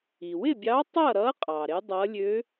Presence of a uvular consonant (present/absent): present